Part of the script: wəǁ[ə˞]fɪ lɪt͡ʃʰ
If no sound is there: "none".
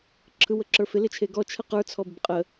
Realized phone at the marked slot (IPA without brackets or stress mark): ə˞